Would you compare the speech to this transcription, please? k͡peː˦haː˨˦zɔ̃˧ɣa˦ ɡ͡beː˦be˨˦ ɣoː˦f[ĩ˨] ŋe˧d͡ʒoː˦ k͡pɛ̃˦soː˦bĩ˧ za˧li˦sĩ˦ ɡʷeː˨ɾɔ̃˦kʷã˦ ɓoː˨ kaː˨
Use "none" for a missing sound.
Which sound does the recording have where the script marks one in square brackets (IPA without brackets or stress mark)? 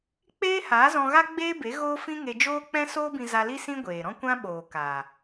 ĩ˦